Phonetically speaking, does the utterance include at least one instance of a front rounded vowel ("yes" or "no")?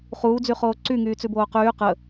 yes